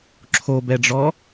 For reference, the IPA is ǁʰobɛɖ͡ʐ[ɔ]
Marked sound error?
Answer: no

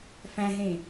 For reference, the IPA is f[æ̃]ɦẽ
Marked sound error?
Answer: no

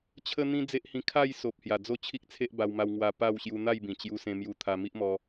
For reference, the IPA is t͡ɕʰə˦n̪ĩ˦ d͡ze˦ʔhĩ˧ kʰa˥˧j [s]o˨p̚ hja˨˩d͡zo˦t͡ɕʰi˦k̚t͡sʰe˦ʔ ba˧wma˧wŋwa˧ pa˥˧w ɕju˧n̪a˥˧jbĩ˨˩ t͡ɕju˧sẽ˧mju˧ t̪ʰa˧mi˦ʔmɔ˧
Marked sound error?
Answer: no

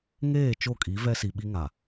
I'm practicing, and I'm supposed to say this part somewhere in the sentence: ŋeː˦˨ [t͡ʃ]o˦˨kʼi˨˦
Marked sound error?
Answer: no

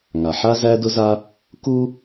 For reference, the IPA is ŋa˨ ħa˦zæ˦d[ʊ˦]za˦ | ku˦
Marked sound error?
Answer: no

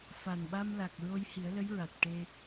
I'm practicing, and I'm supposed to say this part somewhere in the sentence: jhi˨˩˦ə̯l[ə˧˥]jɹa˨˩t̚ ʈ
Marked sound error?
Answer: no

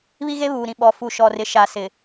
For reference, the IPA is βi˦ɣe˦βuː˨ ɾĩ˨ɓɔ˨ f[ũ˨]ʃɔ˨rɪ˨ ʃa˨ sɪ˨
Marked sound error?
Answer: yes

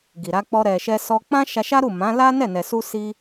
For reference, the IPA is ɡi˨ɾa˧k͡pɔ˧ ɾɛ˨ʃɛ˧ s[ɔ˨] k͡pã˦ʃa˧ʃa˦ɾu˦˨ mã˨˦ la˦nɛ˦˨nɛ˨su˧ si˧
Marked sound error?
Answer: yes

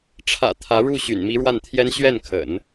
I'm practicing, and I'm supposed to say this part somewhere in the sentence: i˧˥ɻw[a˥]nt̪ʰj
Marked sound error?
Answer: yes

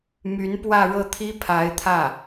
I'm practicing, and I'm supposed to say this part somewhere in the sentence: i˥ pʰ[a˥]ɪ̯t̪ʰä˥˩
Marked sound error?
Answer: yes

